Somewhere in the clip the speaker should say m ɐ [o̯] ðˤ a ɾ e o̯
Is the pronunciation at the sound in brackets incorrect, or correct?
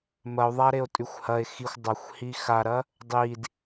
correct